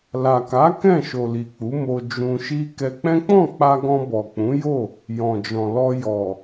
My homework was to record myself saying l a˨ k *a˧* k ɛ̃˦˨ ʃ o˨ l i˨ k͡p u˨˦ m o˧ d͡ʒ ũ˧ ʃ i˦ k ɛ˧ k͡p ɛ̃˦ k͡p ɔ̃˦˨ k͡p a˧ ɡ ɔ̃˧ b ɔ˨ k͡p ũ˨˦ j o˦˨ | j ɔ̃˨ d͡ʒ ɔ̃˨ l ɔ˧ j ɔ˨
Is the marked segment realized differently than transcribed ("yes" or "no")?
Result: yes